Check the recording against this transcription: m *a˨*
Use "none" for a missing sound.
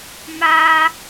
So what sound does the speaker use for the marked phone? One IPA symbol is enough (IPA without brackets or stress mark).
a˦